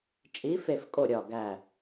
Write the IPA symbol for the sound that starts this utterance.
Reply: t͡ʃʼ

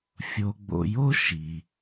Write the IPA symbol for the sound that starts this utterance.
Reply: fʲ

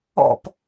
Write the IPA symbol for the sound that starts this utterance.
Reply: ɔ̰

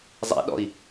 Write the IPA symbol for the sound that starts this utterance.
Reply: zˤ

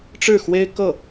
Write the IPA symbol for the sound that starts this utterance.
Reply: ʈ͡ʂ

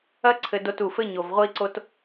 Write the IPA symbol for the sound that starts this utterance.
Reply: ɐ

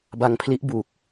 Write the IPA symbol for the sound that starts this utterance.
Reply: b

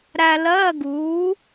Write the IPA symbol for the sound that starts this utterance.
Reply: ɾ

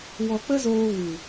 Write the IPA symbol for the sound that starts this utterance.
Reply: w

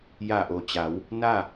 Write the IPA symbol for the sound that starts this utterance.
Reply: j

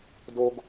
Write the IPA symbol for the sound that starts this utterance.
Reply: d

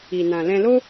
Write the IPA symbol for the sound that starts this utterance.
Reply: i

